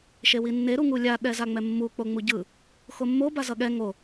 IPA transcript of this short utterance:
ʃ e w i nː e ɾ u ŋ u lʲ a ɗ ɛ z a ŋ͡m ɛ mː u k͡p o ŋ͡m u ɟ ɯ | x o mː o b a z ʌ ɠ ɛ ŋ o

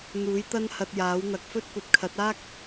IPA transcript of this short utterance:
n̪ uː˨˥ j t̪ ɐ˥ n h ɐ˧ t̚ j aː˨˥ w n̪ ɐ˧ k̚ f ɵ˥ t̚ kʷ ɐ˧ t̚ kʰ ɐ˨˥ t̚ aː˥ k̚

